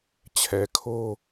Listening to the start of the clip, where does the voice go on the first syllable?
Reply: low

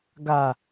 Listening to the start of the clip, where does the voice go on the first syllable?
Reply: low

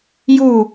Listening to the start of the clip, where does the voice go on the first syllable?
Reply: falling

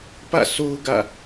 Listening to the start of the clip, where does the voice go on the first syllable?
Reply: falling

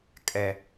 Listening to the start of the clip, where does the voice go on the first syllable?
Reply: low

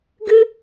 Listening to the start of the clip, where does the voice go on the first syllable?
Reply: high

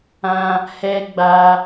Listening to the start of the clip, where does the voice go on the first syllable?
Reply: high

